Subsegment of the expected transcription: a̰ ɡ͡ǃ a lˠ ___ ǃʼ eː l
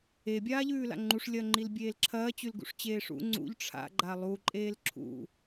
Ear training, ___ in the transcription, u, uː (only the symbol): u